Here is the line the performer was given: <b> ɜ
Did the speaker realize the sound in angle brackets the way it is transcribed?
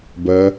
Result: yes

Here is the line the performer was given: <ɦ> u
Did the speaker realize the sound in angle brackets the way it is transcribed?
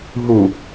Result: yes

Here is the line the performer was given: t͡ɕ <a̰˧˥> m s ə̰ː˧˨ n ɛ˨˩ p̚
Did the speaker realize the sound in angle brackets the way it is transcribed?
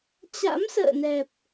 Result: yes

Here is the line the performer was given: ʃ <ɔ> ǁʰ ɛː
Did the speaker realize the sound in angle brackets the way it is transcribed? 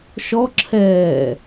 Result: yes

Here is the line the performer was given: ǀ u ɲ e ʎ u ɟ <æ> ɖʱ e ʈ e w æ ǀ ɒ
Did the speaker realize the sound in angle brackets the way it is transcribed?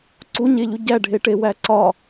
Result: yes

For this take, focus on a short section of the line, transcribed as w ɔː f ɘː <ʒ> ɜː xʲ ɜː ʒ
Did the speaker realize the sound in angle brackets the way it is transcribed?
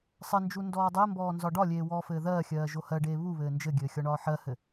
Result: no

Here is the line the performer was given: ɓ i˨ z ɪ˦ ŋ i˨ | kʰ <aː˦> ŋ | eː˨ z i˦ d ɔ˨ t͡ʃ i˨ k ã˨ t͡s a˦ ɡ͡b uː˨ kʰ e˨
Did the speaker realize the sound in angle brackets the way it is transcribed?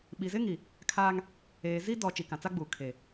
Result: yes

